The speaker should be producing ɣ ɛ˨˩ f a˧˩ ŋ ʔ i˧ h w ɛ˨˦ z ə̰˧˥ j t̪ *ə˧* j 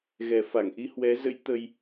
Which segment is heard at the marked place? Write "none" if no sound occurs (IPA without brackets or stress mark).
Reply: ə˧